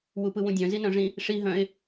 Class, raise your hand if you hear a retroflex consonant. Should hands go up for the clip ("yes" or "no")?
yes